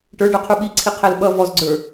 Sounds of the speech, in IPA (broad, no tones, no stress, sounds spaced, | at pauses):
ʈ ə˞ ɖ ə˞ qʰ u ɓ i ǀʰ i qʰ ɛ l ɓ ʌ v ɔ z ɡ͡ǀ ə˞